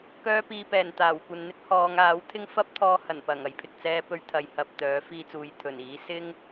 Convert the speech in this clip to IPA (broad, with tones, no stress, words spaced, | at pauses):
kœː˧piː˨pɛː˨˩n t̪aː˨˩w kʷɐ˨nn̪ɪ˥k̚ hɔː˨˧ŋaː˨˥wt̪ʰɪ˥ŋ fɐ˥p̚t̪ʰɔː˧ hɐ˨˩npɐ˨˩ŋɐ˨j pʰɪ˨k̚ t͡sɛː˧pɵ˧ɥ t̪ʰɐ˨j hɐ˧p̚t̪œː˨˥ fiː˧t͡suː˨jt̪ʰɵ˨˩niː˨˥ sɪ˥ŋ